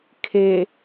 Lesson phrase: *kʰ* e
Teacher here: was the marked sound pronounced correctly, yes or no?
yes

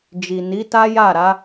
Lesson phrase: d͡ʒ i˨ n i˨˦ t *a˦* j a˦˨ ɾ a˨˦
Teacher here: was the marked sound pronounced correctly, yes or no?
yes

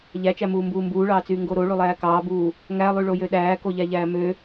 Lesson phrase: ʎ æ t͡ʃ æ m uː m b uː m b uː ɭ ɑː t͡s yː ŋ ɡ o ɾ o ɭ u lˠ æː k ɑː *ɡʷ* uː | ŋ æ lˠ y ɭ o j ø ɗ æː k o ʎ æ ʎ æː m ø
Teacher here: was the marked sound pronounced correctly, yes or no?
no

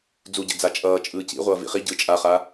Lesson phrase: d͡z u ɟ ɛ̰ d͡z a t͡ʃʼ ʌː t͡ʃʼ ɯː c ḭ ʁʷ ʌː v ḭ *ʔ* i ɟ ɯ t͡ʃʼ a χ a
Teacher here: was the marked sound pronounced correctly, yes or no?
no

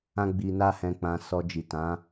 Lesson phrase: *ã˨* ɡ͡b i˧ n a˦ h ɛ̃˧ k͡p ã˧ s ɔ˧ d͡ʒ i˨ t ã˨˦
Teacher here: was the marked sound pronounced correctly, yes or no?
no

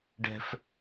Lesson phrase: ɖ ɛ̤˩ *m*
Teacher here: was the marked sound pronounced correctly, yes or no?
no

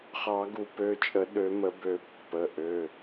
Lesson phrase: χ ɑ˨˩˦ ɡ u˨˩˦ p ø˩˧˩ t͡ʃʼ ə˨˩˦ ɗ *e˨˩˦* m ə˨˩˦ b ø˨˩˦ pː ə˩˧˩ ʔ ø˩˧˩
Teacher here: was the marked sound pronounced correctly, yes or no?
no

